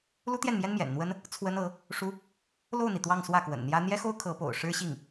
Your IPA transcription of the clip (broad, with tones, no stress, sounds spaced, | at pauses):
l u˥ t̪ j ɛ˥˩ n m j ɛ˥ n m j ɛ̰˨˩ n n̪ w ə˥ n | t͡sʰ w ə˥ n ɤ˧˥ | ʂ u˥ | l o˥˩ ʊ̯ n̪ i˩ t̪ w ɑ˥˧ ŋ s w ä˥˩ k w ə̰˨˩ n n̪ j ä˥ n̪ j ɛ˥ x o˥ ʊ̯ kʰ ɤ˧˥ p o̰˨˩ ʊ̯ ʂ ɻ̩˥ ɕ i˥˩ ŋ